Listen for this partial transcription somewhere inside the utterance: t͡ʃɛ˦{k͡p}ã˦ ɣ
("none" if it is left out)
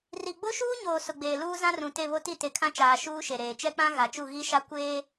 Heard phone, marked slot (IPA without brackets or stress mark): k͡p